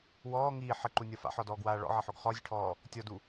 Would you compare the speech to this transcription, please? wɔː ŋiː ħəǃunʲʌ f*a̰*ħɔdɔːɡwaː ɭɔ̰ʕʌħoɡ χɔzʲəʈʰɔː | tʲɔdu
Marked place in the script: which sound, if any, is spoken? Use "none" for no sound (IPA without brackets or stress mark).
a̰